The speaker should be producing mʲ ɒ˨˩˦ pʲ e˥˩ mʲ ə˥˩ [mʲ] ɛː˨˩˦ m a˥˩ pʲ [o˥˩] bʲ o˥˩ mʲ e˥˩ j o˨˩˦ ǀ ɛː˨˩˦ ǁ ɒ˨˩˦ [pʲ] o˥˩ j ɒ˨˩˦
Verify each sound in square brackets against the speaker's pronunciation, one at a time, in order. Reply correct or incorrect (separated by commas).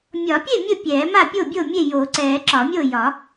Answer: incorrect, correct, incorrect